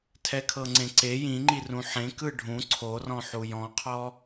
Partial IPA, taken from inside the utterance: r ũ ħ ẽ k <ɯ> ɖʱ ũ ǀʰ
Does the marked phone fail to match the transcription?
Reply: no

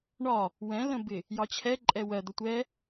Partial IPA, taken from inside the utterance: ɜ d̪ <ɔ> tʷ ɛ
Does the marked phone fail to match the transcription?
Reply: yes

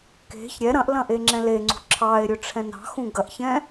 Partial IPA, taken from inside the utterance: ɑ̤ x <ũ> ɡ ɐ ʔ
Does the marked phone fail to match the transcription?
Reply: no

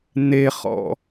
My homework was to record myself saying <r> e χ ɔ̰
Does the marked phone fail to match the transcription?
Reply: yes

